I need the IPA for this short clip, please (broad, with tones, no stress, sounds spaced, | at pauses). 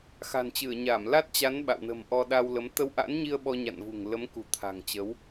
x a̤˨˩ n t͡ɕ ɨ˧˩ ə̯ ɲ a˧˩ m l a˦˥ t̚ t͡ɕ a˨˦ n ɓ a̰˧˨ w n ə̤˨˩ m ʔ ɔ˧ ɗ a˧ w l ə˨˦ m t̪ ə˧ w ʔ a̰˧˥ n ɲ i˧ ə̯ ɓ ɔ˧ ɲ a̰˧˨ n v ṳ˨˩ ŋ l ə˨˦ m k ṳ˨˩ t̪ʰ a̤˨˩ ŋ t͡ɕ ə˨˦ w